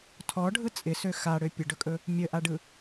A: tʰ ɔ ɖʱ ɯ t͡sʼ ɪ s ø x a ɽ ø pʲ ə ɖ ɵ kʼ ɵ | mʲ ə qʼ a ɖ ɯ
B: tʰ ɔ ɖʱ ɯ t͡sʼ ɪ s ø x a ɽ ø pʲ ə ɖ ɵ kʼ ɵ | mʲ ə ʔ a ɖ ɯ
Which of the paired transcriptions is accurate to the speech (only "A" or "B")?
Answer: B